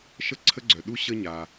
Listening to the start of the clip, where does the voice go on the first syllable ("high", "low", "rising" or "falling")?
high